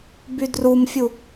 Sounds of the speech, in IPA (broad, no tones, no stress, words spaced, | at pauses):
bydrumfʲu